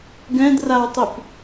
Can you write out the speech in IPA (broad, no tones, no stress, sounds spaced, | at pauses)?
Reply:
ɡ ɛ̃ d r a w tˤ y p